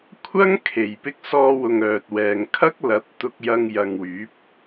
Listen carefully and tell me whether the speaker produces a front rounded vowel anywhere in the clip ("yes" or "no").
yes